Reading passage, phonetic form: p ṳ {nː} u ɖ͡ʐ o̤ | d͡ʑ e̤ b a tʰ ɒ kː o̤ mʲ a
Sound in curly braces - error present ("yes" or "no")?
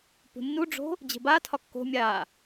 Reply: no